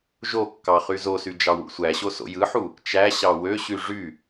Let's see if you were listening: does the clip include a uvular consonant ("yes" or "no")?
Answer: yes